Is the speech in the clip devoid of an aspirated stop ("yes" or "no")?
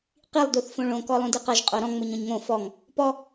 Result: yes